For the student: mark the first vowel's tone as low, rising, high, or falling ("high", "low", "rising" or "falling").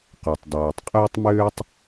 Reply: low